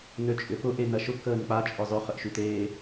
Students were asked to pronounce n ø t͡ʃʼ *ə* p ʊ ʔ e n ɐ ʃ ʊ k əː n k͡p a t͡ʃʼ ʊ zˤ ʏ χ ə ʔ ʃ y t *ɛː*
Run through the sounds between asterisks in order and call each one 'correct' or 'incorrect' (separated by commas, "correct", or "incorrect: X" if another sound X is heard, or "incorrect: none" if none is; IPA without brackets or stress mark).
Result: incorrect: ʏ, incorrect: eː